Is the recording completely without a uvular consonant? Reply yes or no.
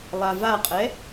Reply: no